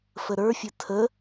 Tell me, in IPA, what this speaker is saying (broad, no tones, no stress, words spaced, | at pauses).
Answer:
fəɾə˞fʲə tʰə